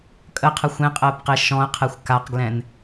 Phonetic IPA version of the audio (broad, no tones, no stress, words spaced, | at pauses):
kʼəqʰə xʷẽqʼəːpqe ʃɔ̃ə̯qʰɛxʷ kaqɡlɛ̃n